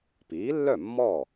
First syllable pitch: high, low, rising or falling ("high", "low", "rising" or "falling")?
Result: rising